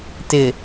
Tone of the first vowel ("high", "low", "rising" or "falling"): low